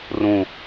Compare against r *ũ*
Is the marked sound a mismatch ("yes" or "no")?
no